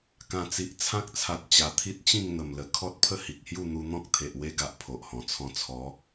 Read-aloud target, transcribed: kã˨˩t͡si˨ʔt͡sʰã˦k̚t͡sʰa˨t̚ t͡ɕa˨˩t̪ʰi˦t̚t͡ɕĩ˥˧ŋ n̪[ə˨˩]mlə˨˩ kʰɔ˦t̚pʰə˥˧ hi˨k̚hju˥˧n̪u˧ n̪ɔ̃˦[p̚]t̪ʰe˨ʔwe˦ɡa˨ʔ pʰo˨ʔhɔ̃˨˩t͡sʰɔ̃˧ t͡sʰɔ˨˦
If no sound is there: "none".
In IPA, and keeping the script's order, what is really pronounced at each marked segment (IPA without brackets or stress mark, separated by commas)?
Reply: ə˨˩, k̚